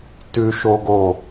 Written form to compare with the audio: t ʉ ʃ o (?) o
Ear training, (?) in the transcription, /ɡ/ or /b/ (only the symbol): ɡ